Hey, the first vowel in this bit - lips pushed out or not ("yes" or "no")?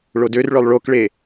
yes